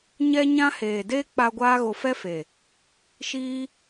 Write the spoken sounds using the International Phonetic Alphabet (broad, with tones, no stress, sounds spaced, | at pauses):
ɲ ɛ˦ ɲ ã˦ h eː˨ d eː˦ k͡p a˧ ɡʷ aː˦ ɣ o˧ f ɛ˦ f e˨ | ʃ iː˦